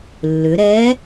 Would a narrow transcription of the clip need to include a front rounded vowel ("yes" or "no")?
yes